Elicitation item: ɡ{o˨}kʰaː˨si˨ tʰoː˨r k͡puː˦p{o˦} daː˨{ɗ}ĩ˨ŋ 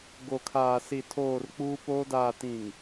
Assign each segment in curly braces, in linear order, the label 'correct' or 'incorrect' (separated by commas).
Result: correct, incorrect, incorrect